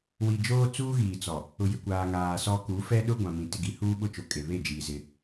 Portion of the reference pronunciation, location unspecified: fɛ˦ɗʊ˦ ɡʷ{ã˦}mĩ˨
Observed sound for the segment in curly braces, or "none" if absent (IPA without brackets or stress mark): ã˨